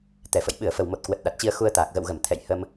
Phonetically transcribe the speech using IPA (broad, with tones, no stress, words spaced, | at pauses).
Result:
t̪ɛ˨˩fə̰˧˨j ɓɨ˧˩ə̯fə˨˩wmo˨˩t̚ kwə˨˩t̚ɗa˨˩t̚t͡ɕi˧ə̯ xu˧ə̯t̪aː˨˩k̚ ɣə̰˧˨wɣə˧˩m t̪ʰɛ̰˧˨jhə˧m